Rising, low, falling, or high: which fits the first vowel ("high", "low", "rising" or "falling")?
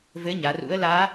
rising